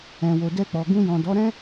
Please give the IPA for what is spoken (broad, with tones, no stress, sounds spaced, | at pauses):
ɛ̃˨ w o˨ d ɛ˧ k͡p ɔ˨ ɡ ũ˧ j ɔ̃˨ d ɔ˨˦ ɾ ɛ̃˦